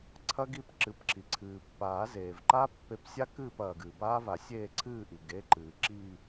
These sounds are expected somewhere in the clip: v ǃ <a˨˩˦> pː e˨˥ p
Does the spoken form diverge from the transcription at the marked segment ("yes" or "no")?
yes